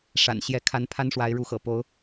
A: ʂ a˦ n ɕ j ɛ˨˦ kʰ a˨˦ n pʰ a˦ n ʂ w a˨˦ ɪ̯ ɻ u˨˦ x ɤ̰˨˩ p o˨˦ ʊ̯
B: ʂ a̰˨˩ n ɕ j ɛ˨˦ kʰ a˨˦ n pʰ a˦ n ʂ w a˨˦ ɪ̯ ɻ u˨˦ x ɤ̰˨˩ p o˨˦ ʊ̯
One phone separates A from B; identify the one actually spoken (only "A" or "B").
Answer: B